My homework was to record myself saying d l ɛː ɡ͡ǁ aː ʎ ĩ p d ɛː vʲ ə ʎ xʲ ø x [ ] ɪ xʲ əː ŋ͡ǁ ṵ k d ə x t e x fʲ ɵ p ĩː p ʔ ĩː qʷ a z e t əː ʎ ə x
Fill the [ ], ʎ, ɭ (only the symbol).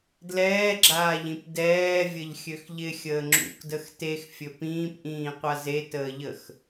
ʎ